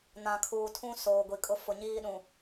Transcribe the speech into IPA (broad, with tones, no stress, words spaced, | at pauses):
nã˨ kʰuː˨tʰũ˦ soː˨ɡʷi˨kʼʊ˦ fʊ˨ ɲiː˦ɗũ˨